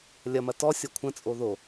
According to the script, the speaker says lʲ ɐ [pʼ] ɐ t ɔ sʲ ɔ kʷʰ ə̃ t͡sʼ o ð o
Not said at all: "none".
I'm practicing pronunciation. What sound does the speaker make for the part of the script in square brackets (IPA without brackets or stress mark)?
m